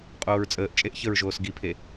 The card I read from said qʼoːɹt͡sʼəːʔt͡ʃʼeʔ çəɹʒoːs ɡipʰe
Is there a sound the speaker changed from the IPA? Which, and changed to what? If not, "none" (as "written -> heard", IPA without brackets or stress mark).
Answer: none